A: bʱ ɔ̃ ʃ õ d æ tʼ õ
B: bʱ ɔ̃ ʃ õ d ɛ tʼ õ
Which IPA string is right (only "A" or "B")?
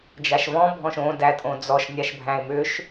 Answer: A